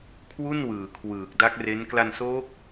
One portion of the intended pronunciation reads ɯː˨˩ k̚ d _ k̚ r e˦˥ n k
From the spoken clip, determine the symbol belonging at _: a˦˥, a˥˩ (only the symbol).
a˦˥